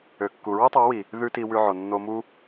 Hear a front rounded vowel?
yes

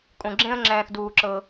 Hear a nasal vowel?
yes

